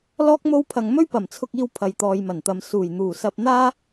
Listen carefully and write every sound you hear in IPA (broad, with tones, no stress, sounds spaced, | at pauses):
l ɔː˥ k̚ m o˥ w pʰ ɐ˧ ŋ m ɵ˥ ɥ p ɐ˨˩ m t͡sʰ ʊ˧ k̚ iː˧ w pʰ ɐ˨ j t̪ ɔː˨ j m ɐ˨˩ n t̪ ɐ˨ m s uː˨˩ j n̪ uː˨˩ s ɐ˧ p̚ n̪ aː˥